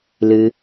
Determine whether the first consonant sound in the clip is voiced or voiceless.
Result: voiced